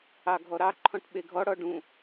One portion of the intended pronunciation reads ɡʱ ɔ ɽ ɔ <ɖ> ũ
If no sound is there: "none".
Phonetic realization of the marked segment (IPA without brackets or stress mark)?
ɖ